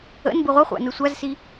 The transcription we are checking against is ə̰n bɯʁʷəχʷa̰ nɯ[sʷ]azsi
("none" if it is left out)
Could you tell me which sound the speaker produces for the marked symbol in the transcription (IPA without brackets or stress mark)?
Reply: sʷ